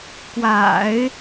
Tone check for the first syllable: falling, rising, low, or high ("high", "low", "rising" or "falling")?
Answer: low